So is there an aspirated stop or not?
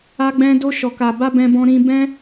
no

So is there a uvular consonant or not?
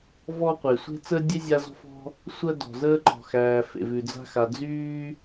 yes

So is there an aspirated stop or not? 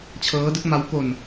yes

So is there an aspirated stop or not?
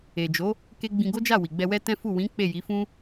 no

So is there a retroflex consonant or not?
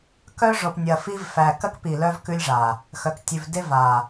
yes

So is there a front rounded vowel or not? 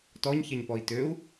yes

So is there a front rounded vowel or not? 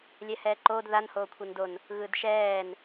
no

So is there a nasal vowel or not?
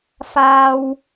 no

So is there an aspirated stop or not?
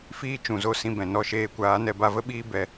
no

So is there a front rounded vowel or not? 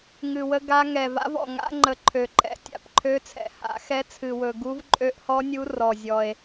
yes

